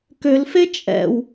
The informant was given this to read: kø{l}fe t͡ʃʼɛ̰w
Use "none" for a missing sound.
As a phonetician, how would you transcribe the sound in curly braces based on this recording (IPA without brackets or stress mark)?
l